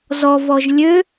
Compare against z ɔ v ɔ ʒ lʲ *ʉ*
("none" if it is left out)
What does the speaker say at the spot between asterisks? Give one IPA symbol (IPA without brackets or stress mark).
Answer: ø